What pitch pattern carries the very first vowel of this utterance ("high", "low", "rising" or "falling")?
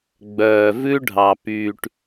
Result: low